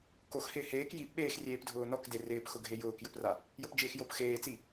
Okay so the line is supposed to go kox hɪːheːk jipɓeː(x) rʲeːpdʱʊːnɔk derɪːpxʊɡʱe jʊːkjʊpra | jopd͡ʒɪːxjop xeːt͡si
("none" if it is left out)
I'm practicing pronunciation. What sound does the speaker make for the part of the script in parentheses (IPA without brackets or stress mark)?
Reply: x